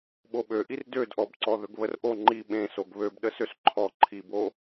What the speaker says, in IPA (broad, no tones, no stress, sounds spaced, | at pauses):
ɓ o ɓ ø ʔ i r d ø d ʔ ɔ b ǀ ɔ ð ɵ ɡ β ə r ʔ o ŋ͡ǃ i ɓ ẽ s o ɡ β ø b ɗ ə s ø s ǃʰ ɔ ǃʰ i b o